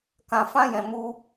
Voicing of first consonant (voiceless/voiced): voiceless